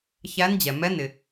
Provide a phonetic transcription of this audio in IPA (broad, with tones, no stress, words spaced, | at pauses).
çæ˧˥nd͡ʑɛ˩mɛ˧˥ nɪ˩